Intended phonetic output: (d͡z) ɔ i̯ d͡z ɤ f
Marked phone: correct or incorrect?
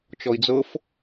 incorrect